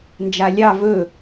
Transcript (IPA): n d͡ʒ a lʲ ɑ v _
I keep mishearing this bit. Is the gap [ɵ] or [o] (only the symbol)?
ɵ